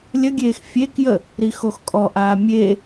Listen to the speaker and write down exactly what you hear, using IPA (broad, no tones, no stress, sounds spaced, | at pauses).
lʲ ə ɡʲ eː x fʲ e k j ə | ɾ i x o x kʼ ɔ ʔ aː mʲ e